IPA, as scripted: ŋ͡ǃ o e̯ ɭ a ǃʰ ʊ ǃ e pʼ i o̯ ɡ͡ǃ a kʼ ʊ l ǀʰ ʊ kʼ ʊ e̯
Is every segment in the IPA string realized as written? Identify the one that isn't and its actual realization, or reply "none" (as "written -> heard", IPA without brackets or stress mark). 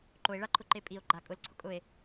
ŋ͡ǃ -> ǃ